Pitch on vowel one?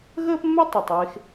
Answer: high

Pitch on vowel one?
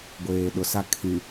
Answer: low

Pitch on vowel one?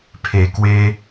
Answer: low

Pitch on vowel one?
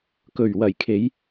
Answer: low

